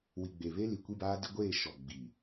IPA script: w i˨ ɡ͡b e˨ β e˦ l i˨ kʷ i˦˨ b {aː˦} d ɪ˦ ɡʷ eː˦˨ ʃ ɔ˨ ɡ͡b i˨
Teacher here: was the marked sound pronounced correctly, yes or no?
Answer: yes